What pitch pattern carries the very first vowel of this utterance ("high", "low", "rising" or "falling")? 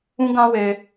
high